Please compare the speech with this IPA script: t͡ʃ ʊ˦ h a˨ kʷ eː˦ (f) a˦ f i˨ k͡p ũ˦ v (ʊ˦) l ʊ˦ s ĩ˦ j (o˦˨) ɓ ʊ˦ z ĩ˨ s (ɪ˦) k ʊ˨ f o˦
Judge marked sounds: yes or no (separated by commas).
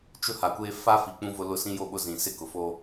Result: yes, yes, yes, yes